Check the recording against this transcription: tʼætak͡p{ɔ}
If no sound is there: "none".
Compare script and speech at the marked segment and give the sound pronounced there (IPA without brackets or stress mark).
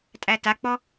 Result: ɔ